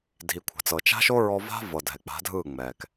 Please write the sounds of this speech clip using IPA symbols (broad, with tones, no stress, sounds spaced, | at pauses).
dʱ i˨ kʷʰ a̤˨ t͡s ɤ˨ t͡ʃ a̤˦ ʃ o˦ ɹ ɔ˧ v a̤˦ v ɤ˨ dʱ ɛ˨ k͡p a̤˨˦ dʱ ɯ˦˨ ŋ͡m ɛ˨ k